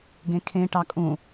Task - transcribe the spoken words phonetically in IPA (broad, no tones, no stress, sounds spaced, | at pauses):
ɡ ẽ kʰ ẽ ʈ ɑ kʼ ũ